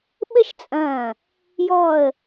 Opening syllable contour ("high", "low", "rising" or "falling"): high